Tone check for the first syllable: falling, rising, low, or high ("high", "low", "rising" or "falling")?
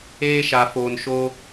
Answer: high